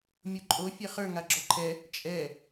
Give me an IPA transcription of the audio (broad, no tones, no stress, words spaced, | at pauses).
mʲoǃʼo fʲɛχə˞ ŋaɡ͡ǁɔǃʰɛ | t͡ʃʼɛ